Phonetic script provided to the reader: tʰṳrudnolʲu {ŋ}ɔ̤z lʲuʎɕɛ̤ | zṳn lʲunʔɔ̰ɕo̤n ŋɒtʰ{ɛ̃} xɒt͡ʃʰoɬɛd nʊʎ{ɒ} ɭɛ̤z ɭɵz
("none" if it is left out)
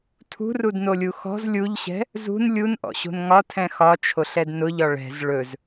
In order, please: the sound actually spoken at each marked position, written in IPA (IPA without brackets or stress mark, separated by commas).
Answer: x, ɛ̃, ɒ